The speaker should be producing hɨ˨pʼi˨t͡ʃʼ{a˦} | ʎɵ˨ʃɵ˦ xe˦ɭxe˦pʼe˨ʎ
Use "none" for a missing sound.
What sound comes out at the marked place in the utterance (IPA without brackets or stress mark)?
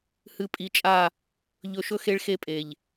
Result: a˦˨